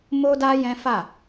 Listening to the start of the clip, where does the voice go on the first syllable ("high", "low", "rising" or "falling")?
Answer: high